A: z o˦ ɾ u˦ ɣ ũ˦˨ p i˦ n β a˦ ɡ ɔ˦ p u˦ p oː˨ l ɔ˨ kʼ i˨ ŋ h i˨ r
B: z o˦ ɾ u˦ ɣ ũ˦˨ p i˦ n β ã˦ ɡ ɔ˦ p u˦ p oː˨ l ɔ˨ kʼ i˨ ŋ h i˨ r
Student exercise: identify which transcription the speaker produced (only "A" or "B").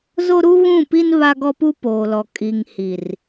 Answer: A